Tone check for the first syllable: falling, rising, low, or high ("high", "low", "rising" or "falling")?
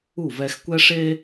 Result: falling